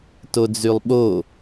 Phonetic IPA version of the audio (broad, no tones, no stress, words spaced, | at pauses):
tod͡zylˠɓo